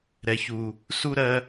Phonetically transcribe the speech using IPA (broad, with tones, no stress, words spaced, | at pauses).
ɾɛ˦çu˦ | su˦ɾɜ˦